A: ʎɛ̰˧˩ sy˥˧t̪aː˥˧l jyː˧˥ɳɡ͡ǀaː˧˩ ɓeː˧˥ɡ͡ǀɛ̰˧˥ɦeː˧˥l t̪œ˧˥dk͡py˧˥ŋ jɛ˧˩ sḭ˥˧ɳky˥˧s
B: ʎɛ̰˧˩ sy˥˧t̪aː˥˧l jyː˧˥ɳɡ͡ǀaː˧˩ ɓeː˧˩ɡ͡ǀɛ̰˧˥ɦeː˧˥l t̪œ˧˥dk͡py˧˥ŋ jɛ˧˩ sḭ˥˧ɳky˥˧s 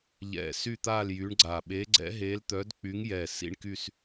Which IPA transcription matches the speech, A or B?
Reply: A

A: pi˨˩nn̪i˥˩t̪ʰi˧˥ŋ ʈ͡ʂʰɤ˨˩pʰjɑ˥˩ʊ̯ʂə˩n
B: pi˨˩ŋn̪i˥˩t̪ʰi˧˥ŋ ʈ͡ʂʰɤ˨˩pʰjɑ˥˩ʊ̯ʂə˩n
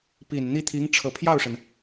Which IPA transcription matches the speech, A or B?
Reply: A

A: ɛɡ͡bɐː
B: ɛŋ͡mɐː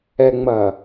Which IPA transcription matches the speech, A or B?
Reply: B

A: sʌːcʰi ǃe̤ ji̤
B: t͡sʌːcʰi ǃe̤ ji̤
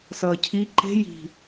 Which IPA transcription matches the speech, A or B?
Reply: A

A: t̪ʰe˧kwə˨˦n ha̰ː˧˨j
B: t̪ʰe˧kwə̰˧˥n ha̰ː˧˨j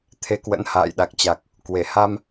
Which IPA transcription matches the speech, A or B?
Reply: B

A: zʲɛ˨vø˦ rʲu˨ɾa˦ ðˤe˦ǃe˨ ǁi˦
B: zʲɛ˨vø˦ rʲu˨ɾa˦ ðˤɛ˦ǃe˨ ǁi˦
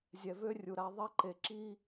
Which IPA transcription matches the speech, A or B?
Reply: B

